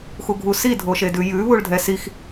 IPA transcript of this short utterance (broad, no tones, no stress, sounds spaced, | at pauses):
x u ɡʱ u s i dʱ o ʃ e d ʉ j ʉ β u ɭ dʱ ɛ s i x